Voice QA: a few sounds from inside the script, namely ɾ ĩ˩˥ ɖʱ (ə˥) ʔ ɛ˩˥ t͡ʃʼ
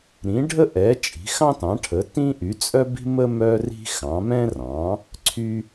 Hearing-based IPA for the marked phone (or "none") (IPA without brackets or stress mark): ə˥